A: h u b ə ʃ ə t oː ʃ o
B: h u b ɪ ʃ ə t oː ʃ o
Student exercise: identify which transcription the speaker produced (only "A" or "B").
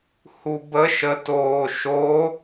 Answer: A